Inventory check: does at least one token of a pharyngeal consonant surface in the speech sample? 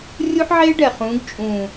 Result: yes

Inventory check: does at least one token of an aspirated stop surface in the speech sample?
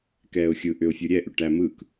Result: no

